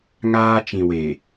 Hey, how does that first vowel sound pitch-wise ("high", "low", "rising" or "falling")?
high